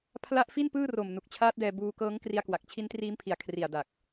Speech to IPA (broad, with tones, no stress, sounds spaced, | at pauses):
pʰ l a˦˥ ʔ f i˥˩ n p ɯː˥˩ r o˨˩ m n u˨˩ k̚ t͡ɕʰ aː˦˥ t̚ d ɛː˧ b uː˧ k ɤː˦˥ ŋ k r i˧ a̯ k w a˨˩ k̚ t͡ɕʰ i˦˥ n t r iː˦˥ m pʰ i˨˩ a̯ kʰ r i˨˩ a̯ d a˨˩ k̚